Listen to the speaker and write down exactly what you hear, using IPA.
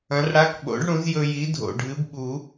ɐ̃˨˥ r ɽ a˧˥˧ k ɓ o̰˨˥ ɖ ɽ ũ˨˥ z j ɵ˧ j i˨˥ dʱ o̰˨˩ ɖʱ ɨ˨˥ b ɓ u˨˩˦

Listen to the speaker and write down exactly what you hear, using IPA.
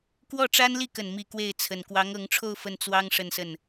k w ɔ˥˩ ʈ͡ʂ a˥ n l i˥˩ k ə˨˩ n m i˥˧ k w e˥˩ ɪ̯ t͡sʰ ə˨˩ n k w ɑ˧˥ ŋ ɤ˧˥ ŋ ʈ͡ʂʰ o˥˧ ʊ̯ f ə˥˩ n t͡s w ɑ˥ ŋ ʂ ə˥˧ n s ə˥˩ n

